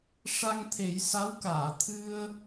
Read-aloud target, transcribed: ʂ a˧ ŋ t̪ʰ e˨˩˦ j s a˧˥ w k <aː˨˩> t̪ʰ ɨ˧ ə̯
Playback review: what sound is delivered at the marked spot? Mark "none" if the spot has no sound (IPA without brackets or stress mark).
aː˨˩˨